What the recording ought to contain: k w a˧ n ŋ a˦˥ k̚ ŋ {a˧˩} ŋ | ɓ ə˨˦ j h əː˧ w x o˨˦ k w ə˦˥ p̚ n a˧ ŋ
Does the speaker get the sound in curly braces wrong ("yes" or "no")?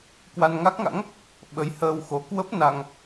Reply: yes